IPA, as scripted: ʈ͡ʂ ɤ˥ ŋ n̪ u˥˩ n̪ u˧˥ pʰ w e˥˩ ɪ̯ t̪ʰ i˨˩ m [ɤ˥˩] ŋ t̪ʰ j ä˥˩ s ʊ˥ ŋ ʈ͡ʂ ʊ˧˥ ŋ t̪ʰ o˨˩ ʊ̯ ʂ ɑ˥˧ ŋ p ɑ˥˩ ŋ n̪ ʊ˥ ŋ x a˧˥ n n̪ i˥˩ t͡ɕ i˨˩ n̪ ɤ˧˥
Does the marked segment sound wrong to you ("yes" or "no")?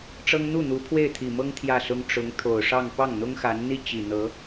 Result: yes